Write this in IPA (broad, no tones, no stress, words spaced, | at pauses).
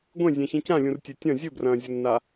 ɡʷẽzʲẽçĩ cãlʲũrtʲe tʲɐ̃ zʲɵbrɐ̃ːzʲɐnːa